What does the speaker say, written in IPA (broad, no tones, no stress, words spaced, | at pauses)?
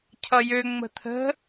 cʰʌjø ŋ͡mə̤t̪ʰə̤